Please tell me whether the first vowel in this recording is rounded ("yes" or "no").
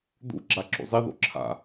yes